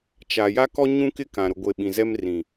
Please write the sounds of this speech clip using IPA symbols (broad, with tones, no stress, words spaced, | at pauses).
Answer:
t͡ʃa˨ ja˦kɔ˦ ɲũ˦kɪ˦kã˨ ɾʊ˨ɡʷe˨ ɓĩ˨zɛ˦m rĩ˨